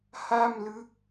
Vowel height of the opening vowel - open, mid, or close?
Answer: open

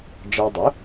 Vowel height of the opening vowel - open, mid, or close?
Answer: open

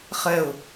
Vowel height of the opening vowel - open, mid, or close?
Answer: mid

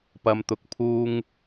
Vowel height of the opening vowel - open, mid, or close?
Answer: open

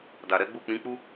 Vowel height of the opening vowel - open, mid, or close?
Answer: open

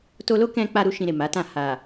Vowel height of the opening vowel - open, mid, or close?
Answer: mid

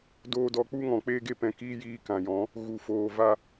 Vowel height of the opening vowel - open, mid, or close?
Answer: mid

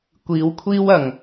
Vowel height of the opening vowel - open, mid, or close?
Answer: close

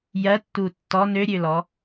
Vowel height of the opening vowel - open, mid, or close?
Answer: mid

